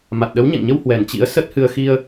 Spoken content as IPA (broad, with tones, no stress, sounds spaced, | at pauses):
m a˨˩ t̚ ɗ ə˨˦ w ɲ ɛ̰˧˨ ŋ ɲ ə˧ w h w ɛ˨˩ n t͡ɕ ḭ˧˥ ə̯ s ə˦˥ t̚ h ɨ˧ ə̯ x i˧ ə̯